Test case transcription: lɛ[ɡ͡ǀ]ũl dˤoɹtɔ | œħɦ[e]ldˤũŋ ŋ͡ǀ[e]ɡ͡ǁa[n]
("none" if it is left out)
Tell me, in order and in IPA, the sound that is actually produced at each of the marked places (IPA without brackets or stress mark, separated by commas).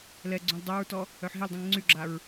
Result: ɡ͡ǀ, e, y, ɹ